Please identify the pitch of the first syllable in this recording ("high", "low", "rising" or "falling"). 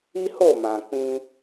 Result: high